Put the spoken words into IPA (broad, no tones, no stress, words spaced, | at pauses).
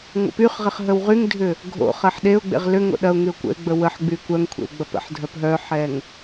ŋʷə̰pyχʁɪχ ɦəwʁyŋdʱʏ | ɡʱo̰χɐħ ɗeʊ̯ɡ͡bḛʁ lʏ ŋo̰ɗɐʊ̯ŋyʊ̯ kʷə̰ɪ̯ɡ͡bə wəħɡ͡by kʷœŋkʷʰḛw ɡ͡bɐpə̰ħdʱœp ɦœħɛŋ